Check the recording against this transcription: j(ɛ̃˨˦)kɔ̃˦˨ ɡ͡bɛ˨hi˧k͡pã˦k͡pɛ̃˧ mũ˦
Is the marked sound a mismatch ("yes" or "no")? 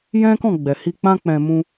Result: yes